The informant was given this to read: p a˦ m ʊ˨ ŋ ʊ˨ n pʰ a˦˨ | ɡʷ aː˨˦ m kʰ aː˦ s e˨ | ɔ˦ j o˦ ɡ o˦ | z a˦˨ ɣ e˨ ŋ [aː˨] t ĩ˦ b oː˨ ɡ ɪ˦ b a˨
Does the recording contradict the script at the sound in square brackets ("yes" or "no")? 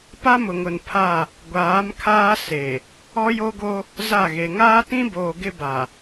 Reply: yes